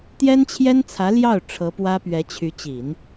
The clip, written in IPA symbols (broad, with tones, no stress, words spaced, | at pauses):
t̪jɛ˥nt͡ɕʰjɛ˥nt͡sʰä˧˥ ljɑ˥˩ʊ̯ ʈ͡ʂʰɤ˧˥pwä˥pɥɛ˧˥ t͡ɕʰy˧˥t͡ɕi˨˩˦n